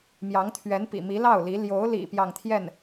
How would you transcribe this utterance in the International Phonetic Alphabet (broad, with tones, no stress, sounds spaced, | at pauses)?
m j ɑ˧˥ ŋ t̪ʰ ɥ ɛ˧˥ n p ḭ˨˩ m i˧˥ l ɑ˥˩ ʊ̯ l i˧˥ l j o˧˥ ʊ̯ l ḭ˨˩ p j ɑ˥˧ ŋ t̪ʰ j ɛ˥˩ n